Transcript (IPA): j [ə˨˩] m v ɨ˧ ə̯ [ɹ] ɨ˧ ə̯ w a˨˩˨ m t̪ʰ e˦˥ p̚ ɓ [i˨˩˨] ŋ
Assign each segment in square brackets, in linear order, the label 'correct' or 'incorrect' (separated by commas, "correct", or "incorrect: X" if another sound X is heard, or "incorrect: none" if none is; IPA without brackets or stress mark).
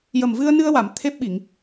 correct, incorrect: n, correct